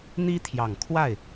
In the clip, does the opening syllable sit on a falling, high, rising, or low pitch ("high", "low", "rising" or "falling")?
high